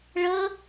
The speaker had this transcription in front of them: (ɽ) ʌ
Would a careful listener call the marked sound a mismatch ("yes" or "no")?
yes